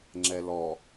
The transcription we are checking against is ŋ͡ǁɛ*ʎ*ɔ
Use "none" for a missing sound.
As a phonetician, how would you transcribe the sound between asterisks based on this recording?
l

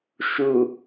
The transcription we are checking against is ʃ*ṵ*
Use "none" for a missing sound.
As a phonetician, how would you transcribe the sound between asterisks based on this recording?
u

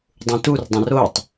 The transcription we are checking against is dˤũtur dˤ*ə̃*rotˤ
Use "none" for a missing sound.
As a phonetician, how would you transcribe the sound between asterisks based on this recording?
ə̃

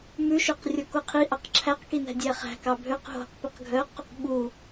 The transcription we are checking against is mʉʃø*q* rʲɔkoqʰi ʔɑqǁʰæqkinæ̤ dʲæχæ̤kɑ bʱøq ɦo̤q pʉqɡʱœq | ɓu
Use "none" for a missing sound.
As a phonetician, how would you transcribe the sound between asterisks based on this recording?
q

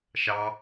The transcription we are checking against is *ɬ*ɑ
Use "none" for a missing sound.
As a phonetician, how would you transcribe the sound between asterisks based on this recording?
ʃ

